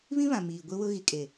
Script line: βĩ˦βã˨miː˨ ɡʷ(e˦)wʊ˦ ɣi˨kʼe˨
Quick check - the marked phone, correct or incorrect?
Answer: incorrect